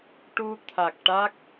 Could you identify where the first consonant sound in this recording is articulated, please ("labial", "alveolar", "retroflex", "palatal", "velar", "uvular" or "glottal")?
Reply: retroflex